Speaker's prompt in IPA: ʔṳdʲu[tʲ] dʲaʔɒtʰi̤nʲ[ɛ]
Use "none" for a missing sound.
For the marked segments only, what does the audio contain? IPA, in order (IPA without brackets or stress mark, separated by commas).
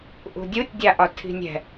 tʲ, ɛ̤